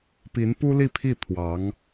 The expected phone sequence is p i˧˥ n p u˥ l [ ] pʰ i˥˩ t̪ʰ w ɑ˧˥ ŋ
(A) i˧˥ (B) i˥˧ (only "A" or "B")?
B